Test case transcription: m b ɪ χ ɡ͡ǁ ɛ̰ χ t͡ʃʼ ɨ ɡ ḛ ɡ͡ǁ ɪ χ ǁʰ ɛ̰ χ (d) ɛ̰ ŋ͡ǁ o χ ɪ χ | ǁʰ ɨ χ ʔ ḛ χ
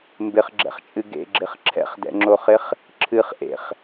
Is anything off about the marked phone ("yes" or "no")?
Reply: no